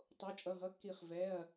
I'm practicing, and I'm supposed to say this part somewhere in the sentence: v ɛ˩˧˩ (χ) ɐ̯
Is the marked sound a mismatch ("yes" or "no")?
yes